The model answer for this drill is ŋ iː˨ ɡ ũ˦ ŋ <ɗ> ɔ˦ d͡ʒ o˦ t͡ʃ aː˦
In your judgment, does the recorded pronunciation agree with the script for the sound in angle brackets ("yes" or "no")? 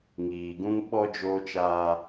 no